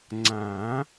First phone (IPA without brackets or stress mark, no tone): ŋ͡ǀ